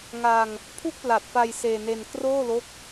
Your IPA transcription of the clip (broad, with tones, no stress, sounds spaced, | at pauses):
ŋ a˧ ŋ | pʰ u˥˩ k̚ p l a˨˩ t̚ f a˧ j s eː˧ n e˧ n k r oː˥˩ l o˦˥ k̚